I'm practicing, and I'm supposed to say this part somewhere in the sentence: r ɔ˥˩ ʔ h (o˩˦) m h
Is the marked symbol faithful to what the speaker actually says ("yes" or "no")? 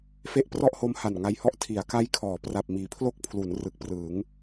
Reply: no